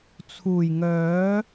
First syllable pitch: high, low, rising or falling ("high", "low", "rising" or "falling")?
low